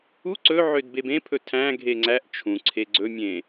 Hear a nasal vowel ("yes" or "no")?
yes